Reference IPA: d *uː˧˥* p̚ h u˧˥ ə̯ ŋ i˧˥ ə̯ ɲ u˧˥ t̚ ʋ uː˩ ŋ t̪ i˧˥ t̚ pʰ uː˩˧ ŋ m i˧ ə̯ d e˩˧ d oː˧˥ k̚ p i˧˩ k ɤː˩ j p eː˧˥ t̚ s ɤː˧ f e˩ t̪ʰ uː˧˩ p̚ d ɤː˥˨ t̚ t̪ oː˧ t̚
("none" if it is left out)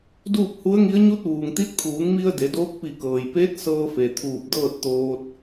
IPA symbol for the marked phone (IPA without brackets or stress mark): uː˥˨